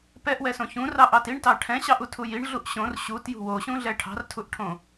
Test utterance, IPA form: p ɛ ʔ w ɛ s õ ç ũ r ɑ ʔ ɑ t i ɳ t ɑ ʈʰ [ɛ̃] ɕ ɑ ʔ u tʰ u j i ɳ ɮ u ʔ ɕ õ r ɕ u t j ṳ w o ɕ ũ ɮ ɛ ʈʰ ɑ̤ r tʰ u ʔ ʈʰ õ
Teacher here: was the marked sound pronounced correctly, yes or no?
yes